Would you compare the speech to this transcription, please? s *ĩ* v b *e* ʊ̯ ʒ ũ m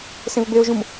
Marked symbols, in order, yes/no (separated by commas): no, yes